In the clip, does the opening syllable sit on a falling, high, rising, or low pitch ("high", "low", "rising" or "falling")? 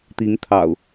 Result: rising